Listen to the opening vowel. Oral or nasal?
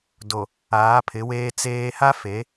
oral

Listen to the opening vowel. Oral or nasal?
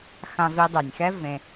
nasal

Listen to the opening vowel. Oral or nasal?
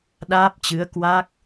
oral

